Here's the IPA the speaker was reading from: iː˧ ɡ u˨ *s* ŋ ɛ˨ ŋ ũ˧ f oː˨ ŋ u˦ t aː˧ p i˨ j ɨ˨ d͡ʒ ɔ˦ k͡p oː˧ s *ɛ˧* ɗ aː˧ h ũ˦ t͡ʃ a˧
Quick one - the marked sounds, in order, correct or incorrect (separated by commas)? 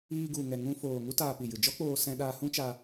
incorrect, incorrect